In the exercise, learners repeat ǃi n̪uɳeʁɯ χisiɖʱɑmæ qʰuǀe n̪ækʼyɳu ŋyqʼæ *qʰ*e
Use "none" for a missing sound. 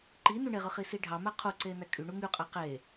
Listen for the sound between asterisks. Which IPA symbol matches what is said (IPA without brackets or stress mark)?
q